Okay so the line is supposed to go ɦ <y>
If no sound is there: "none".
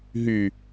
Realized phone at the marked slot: y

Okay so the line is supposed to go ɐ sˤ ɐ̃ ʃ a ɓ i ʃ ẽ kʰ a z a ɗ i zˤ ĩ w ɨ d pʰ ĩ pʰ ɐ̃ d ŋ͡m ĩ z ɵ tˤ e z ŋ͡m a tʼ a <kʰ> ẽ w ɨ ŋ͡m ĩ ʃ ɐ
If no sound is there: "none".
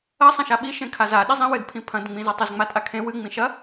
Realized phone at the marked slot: kʰ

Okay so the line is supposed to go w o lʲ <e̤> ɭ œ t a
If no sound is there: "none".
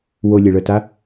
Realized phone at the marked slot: e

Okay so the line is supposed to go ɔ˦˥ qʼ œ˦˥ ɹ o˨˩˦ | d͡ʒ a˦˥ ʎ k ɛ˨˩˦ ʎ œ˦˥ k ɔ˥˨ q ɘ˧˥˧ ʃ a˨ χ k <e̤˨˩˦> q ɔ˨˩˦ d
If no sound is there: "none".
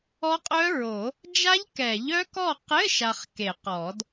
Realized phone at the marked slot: e˨˩˦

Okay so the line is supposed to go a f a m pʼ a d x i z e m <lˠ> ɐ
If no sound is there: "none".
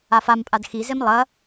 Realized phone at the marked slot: lˠ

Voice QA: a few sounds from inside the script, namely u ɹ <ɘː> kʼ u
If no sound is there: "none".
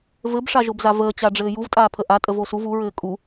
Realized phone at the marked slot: ɘː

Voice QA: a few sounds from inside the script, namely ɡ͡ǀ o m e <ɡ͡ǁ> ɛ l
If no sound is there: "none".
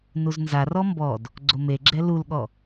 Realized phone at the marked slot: ɡ͡ǁ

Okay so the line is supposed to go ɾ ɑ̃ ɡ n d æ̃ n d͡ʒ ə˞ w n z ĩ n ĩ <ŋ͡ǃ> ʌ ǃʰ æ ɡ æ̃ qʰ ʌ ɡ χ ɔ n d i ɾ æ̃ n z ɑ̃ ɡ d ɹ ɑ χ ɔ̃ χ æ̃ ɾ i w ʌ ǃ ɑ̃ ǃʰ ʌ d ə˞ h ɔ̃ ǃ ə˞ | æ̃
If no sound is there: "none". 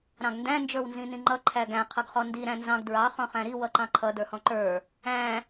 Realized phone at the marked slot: ŋ͡ǃ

